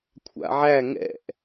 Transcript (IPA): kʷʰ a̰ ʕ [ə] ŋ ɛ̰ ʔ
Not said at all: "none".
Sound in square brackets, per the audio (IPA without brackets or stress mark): æ